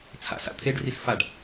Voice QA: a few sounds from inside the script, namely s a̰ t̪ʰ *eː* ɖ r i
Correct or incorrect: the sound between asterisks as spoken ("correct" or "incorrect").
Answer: incorrect